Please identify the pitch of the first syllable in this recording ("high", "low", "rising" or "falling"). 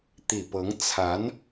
low